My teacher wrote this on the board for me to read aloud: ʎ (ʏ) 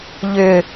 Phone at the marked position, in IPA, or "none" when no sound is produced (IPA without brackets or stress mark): ʏ